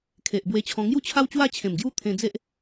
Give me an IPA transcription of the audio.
kʰ e˨ ʔ b w e˧ t͡ɕʰ ɔ̃˧ ŋ j u˥˧ t͡ɕʰ a˦ w t͡ɕ w a˦ t͡ɕʰ ẽ˨˩ m ɡ j u˦ t̪ʰ ẽ˧ d͡z e˦ ʔ

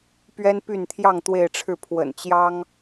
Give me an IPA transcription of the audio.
p ɥ ɛ˥ n p y˥˧ n t̪ʰ j ɑ˥˧ ŋ t̪ w e˥˧ ɪ̯ ʈ͡ʂʰ ɻ̩˥˩ pʰ w ə̰˨˩ n t͡ɕ j ɑ˥ ŋ

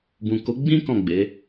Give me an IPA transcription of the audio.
b ũ˨ k o˨˦ ɡ͡b ĩ˦ k ɔ̃˦˨ ɡ͡b e˨˦

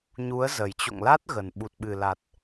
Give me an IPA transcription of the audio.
ɲ u˨˦ ə̯ z ə˨˩ j t͡ɕ o̰˧˨ ŋ l a˦˥ t̚ ɣ ə˨˩ n ɓ u˨˩ t̚ ɓ ɨ˨˩ l a˨˩ t̚

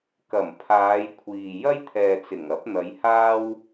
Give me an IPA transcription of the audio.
k ɐ˨˩ m pʰ aː˨˧ j kʷʰ iː˨ j ɐ˥ j t̪ʰ ɛː˨ t͡s ɪ˨˩ ŋ ɐ˨˥ p̚ n̪ ɐ˨˧ j h aː˥ w

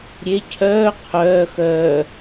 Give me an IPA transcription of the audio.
ɾʲ e cʰ œː qʰ œː x œː

